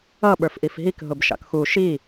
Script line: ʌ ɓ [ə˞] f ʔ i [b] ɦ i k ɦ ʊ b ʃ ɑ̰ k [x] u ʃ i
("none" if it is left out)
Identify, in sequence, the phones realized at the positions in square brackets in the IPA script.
ə˞, f, x

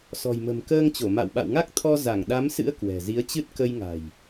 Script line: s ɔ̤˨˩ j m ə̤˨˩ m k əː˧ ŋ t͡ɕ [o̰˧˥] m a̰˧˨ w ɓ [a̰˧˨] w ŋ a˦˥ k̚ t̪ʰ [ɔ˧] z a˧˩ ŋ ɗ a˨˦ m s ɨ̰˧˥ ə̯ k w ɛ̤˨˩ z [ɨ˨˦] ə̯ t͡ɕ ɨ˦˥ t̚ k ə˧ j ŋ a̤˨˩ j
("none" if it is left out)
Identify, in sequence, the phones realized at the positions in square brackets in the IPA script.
o˧˩, a̰˧˨, ɔ˧, i˨˦

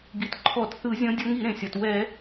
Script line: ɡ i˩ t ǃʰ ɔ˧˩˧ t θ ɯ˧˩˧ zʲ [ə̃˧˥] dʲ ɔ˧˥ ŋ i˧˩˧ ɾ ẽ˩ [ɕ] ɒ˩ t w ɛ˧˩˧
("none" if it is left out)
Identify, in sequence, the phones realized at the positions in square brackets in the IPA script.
ɔ̃˧˥, sʲ

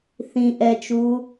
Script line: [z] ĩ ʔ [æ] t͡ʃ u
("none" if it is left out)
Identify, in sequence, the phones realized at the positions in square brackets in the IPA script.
θ, ɛ

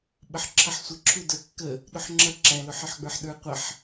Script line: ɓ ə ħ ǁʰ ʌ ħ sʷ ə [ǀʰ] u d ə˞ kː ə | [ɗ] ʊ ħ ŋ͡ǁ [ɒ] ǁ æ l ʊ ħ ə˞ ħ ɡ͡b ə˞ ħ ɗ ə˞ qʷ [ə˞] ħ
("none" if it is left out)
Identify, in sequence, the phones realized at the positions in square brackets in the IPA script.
ǁʰ, ɗ, ʌ, ʌ

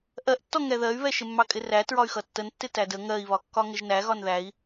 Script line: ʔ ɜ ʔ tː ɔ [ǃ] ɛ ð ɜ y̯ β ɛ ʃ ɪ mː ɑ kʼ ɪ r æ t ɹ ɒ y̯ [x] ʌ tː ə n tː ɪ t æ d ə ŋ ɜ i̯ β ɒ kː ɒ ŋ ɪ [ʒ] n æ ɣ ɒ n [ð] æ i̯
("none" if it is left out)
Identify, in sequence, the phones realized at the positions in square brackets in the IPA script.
ŋ, x, ʒ, ð

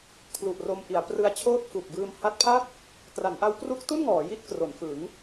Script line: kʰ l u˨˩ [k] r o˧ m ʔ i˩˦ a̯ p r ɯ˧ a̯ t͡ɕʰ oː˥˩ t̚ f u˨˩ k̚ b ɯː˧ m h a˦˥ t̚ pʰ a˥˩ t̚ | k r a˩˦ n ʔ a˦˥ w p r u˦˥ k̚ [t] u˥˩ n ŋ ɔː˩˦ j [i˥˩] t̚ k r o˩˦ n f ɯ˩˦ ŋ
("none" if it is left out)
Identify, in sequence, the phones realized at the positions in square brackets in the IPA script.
ʔ, t, i˥˩

